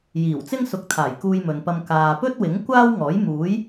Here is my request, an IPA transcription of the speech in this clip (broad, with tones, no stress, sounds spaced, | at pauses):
j iː˨˩ w t͡s ɪ˥ ŋ s ʊ˨˥ k̚ t̪ʰ aː˨˩ j k uː˧ j m ɵ˨ n p ɐ˧ m k aː˨ p ɵ˥ t̚ w ɪ˨˥ ŋ kʷ aː˥ w ŋ ɔː˨˥ j m uː˨˥ j